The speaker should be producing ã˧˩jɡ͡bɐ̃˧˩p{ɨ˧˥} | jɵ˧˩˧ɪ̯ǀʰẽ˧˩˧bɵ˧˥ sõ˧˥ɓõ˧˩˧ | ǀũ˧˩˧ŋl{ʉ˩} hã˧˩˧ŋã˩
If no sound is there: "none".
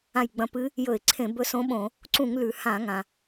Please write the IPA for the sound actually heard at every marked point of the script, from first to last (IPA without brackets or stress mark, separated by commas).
ɨ˧˥, ʉ˩